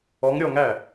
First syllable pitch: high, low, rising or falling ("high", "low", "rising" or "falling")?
rising